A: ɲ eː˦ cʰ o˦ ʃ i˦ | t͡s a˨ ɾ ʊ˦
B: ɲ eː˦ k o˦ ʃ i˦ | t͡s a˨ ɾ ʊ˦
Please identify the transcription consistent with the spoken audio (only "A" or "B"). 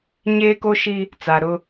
B